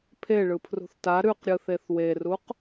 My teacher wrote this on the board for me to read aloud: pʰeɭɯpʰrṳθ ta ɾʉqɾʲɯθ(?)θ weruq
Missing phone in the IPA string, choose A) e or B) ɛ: A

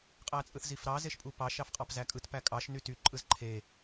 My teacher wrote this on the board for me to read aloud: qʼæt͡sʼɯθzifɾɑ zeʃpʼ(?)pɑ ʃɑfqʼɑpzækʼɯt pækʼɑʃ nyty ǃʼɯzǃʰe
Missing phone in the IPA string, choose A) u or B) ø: A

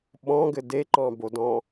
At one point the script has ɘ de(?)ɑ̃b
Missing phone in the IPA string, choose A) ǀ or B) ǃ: B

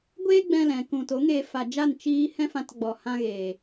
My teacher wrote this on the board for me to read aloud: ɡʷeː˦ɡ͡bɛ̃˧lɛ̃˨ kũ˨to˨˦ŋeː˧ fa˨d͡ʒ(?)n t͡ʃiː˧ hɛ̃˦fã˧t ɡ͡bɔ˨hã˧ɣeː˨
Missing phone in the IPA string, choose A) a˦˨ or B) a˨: A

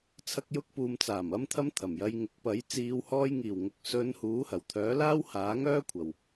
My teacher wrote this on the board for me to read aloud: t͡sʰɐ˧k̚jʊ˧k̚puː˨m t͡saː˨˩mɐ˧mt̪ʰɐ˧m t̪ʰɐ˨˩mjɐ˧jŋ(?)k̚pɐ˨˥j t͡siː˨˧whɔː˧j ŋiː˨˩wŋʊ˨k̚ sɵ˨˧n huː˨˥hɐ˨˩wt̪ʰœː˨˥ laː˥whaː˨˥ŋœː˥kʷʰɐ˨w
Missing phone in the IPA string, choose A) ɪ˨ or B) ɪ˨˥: B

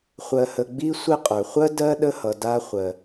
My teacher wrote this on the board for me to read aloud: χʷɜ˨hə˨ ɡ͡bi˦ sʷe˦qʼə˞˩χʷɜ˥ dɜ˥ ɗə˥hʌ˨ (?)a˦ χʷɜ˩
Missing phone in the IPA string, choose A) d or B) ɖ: A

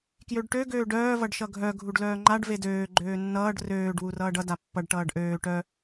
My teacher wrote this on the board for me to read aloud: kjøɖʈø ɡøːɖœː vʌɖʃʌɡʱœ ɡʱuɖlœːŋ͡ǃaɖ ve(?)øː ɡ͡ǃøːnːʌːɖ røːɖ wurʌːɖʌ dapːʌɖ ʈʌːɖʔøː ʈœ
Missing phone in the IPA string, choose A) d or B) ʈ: A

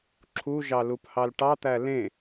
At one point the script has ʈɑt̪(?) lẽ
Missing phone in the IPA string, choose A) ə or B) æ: B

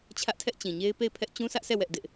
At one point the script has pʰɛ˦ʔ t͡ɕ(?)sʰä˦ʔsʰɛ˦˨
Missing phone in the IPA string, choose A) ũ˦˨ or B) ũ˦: B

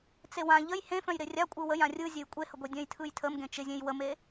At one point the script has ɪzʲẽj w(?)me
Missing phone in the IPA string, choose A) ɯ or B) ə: B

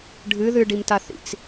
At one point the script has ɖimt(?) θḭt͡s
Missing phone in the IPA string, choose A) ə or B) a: B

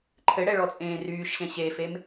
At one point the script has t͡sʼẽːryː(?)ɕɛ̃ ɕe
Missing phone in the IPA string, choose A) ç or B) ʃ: B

